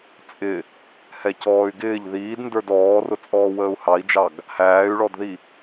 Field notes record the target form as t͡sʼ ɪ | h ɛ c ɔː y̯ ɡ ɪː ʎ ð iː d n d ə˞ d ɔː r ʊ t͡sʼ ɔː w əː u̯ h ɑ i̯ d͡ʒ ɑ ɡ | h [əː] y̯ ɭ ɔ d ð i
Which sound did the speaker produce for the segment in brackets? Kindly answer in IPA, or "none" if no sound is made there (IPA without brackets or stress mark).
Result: æː